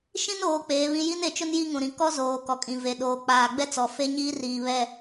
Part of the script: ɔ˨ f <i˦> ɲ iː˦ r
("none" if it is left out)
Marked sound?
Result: e˦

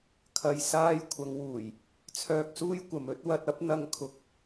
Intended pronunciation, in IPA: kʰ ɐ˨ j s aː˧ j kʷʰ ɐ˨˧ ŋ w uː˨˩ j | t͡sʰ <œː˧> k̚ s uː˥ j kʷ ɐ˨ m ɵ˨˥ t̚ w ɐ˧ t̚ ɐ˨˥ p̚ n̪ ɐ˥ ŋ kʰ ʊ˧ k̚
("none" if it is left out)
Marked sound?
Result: œː˧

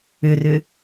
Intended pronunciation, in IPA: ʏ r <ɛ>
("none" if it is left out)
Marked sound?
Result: ʏ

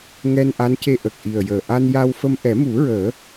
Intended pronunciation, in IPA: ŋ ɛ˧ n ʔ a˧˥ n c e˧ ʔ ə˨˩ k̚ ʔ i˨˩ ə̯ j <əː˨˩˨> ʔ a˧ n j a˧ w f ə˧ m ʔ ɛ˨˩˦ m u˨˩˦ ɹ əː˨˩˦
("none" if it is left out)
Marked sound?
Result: əː˨˩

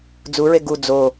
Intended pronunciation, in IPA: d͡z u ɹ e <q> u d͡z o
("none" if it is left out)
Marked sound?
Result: ɡ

